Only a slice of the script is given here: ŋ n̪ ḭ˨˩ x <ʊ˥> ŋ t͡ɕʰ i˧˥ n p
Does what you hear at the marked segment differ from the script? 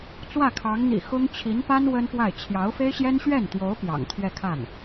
no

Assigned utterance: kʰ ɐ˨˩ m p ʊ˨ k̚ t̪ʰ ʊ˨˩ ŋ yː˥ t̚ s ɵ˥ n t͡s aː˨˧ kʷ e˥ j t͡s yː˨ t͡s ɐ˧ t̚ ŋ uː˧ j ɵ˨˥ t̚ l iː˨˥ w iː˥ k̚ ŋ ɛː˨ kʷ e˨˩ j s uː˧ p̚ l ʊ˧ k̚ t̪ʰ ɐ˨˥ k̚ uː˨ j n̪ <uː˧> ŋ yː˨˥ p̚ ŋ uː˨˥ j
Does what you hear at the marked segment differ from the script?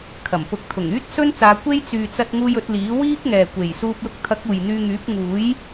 yes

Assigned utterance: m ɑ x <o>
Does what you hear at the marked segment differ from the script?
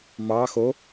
no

